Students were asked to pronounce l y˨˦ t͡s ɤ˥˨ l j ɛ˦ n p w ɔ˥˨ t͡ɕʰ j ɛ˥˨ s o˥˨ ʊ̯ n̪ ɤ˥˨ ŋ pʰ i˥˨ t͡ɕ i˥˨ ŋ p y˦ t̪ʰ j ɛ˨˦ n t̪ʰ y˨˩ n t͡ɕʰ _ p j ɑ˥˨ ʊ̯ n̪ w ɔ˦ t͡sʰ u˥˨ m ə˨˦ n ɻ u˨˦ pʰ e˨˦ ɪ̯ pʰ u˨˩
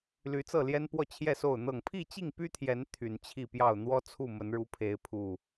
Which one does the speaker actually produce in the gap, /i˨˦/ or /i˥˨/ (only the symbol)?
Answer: i˥˨